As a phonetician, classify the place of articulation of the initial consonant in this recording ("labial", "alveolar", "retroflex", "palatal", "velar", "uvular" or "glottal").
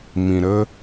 labial